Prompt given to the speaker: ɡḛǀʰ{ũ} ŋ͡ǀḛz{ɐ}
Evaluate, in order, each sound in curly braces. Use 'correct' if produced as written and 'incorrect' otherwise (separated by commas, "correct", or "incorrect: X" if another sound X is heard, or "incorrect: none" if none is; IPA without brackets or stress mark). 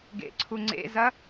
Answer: incorrect: u, correct